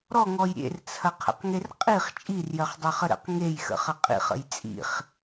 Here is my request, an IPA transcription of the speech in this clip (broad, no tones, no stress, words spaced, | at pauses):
ɾɔŋɔj ɾʲḛrt͡sʰɐqʰə̰qŋer qʼiχ t͡ʃʼirjɜχdˤɜχə ɾə̰q ŋejxə̰χɐ qʼḭχə̰j t͡sʼḭχ